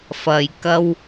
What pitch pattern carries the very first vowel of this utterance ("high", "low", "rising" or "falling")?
low